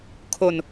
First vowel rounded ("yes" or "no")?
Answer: yes